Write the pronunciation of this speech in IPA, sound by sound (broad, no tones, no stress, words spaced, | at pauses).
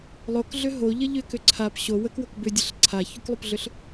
lˠokɮʏ ɦoʎə ʎʏkʏ ǀʰap ɕo wəkwok bʏdʲəɬ ǀʰaçuklˠupɮʏɬ